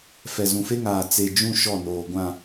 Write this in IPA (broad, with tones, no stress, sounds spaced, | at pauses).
f ɛ˨ z ũ˨ f e˦ ŋ aː˨ t͡s e˨ d͡ʒ ũ˦˨ ʃ ɔ˦˨ n oː˨ ɡʷ ã˨